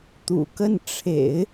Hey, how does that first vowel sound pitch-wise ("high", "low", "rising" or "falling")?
low